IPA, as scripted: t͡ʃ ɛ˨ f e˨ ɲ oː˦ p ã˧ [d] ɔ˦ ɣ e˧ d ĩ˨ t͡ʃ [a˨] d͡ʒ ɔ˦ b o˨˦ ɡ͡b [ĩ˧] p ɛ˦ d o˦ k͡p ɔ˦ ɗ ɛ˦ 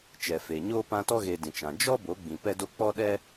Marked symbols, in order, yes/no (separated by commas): no, no, yes